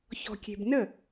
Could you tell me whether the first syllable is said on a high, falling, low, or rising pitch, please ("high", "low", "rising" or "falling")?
low